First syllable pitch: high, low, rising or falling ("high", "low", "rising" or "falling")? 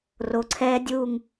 low